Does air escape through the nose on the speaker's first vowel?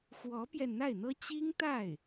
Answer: no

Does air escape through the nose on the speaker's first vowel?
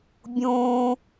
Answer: yes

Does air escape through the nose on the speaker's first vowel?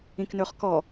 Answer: yes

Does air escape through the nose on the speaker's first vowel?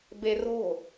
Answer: no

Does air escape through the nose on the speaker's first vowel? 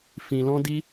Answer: yes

